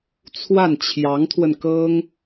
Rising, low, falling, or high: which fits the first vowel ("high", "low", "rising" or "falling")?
falling